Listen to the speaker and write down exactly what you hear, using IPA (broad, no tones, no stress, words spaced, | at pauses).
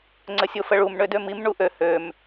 ŋ͡ǀəsʲofəɭum ɳødømim ɳuʔø høm